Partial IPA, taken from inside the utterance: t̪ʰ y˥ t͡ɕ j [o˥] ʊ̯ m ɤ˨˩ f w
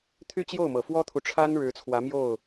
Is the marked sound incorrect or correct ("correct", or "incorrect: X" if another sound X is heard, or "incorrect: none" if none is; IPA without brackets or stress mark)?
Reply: incorrect: o˥˩